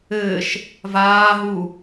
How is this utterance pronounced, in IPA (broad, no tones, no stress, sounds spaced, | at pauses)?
ɘː ʃ | v aː ɦ u